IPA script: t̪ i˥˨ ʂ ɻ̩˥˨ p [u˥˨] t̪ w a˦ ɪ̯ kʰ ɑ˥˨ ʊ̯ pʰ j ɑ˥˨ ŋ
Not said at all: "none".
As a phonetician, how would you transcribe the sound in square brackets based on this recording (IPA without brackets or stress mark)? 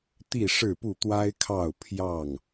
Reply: u˥˨